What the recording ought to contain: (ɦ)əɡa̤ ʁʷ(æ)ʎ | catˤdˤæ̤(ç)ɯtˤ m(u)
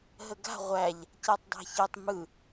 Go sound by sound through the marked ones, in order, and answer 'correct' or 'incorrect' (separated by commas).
correct, correct, correct, incorrect